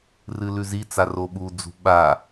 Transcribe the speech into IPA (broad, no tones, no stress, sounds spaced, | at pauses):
r ɨ l ʉ z i t͡s a r o ɓ u d͡z ṳ ɓ a